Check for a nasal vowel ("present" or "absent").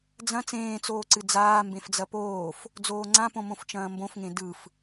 present